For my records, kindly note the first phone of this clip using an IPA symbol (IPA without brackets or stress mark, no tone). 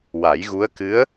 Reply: w